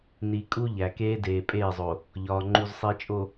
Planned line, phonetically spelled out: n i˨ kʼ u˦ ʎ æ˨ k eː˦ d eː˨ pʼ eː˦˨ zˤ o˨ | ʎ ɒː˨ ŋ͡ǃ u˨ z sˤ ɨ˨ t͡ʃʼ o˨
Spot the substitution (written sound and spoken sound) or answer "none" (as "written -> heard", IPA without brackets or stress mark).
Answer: ɨ˨ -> i˨